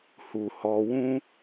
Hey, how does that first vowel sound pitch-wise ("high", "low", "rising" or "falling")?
low